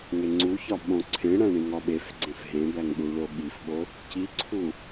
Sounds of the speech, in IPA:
ŋ e ŋ͡ǀ u ç ɒ ɓ õ ǀʰ ẽ ɽ æ̃ ɳ ĩ ŋ ɒ ɓ e f ɡ͡ǀ ẽ f ɦ ẽ b æ ŋ ɗ u ɭ o ɠ i f ɓ o | c i ǀʰ u

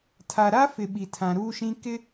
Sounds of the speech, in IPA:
tʰ a˨ ɾ a˦ f ɪ˨ ɓ i˨ tʰ ã˨ ɾ uː˦ ʃ ĩ˦ k ɪ˦

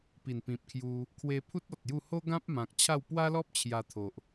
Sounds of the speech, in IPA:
p i˨˩ n p ĩ˨ p̚ kʰ j u˧ | kʰ w e˧ pʰ u˦ t̚ ɔ˨ t̚ j u˥˧ h o˦ ɡ ã˦ p̚ m ã˨ k̚ t͡ɕʰ a˥˧ w p w a˦ l ɔ˦ p̚ t͡ɕʰ j a˧ t̪ʰ o˨ ʔ

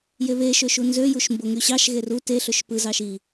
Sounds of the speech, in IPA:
j e β e ʃ ø ʃ u n z ø j u ʃ m b o ŋ y ɕ ɑ ʃ ɣ e r u t e ɬ ø ʃ p ɯ z ɑ ʃ i

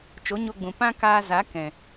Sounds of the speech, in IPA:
t͡ʃ o˨˦ ɲ o˧ ɡ͡b ũ˨ p ã˦ k aː˧ z a˨˦ k ɛ̃˨

